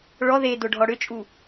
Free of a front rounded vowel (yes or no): no